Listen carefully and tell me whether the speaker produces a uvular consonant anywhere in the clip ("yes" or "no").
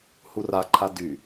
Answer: no